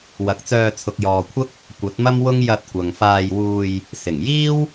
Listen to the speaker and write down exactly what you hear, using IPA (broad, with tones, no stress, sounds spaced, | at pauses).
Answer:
w ɐ˨˥ k̚ t͡s œː˧ t͡sʰ ʊ˨ k̚ j ɔː˨ kʷʰ ɐ˥ k̚ | kʷ ɐ˨˥ t̚ m ɐ˥ m w ʊ˥ ŋ j ɐ˧ t̚ kʷ ɐ˨ ŋ f aː˧ j w uː˧ j | s ɪ˨˩ ŋ j iː˥ w